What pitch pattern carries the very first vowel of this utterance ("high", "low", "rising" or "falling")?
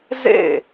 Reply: falling